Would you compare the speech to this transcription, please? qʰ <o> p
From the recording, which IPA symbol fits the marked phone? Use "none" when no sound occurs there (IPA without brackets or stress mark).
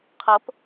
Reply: ɤ